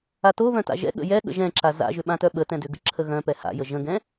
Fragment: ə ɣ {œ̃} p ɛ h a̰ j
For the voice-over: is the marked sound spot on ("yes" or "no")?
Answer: yes